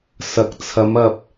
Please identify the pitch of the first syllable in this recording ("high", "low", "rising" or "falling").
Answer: low